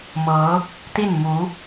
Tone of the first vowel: rising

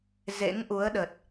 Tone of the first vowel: rising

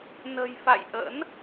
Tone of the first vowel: low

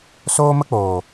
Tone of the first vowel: high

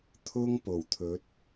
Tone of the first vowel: high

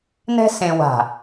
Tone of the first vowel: high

